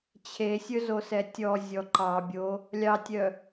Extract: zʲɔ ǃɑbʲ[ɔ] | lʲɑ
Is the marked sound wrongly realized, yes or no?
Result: yes